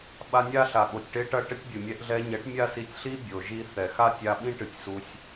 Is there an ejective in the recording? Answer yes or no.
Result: no